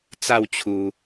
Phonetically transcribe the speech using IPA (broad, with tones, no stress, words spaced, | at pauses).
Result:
t͡sa˥˧w t͡ɕʰu˦